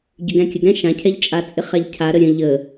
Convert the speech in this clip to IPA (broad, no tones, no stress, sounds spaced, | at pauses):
ɟ ʏ ɡ ɛ̃ kʲ ə ɡ ɾ ɛ̃ ʃ ã cʰ ɛ ʎ t͡ʃʼ a t͡sʼ ɪ χ a ʎ cʰ a ɾ ə ɾʲ ə̃ ʎ ə